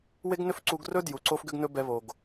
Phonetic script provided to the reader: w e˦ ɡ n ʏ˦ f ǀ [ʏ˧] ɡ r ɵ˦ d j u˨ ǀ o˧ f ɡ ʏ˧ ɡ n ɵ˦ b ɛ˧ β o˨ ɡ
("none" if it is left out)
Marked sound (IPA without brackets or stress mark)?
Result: u˧